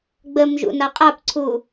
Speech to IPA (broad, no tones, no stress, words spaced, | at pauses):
ɡ͡bəmʒṵ naqʼapǀʰu